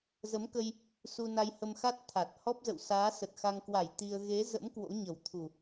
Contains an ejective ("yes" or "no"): no